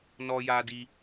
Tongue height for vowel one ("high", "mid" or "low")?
mid